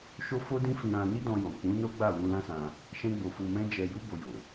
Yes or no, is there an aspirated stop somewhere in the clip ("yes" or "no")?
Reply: no